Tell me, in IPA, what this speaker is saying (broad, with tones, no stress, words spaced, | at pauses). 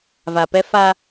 va˨pɛ˦ fa˦